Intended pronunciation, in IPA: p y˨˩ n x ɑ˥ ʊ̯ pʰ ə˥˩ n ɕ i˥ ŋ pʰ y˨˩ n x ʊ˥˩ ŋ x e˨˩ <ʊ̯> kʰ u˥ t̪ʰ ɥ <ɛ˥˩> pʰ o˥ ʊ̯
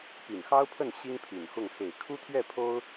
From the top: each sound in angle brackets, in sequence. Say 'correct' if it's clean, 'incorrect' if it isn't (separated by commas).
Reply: incorrect, correct